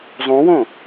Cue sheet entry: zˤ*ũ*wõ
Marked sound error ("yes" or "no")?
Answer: no